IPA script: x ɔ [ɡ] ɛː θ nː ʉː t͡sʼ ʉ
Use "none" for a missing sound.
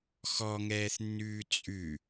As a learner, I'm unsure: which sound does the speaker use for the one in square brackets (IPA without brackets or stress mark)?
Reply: ŋ